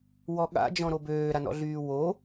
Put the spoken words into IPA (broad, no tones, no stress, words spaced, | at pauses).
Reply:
wɔɠa̰d͡ʒɔ̃ ɾobøːɾanɔ̰ ɮyːwo